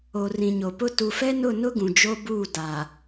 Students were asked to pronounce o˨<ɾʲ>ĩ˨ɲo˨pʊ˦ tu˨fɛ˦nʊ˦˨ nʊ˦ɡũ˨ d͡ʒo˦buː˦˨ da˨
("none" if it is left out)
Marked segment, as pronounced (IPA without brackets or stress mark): r